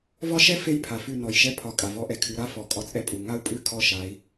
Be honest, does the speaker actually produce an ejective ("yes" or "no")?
yes